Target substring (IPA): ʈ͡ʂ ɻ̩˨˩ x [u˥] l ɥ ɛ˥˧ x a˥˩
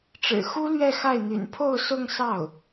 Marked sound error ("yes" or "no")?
no